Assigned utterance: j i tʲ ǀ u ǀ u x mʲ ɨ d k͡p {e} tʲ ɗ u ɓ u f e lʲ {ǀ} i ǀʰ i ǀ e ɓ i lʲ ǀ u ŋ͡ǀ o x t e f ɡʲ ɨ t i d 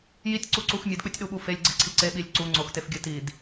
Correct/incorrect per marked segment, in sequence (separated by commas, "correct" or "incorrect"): incorrect, incorrect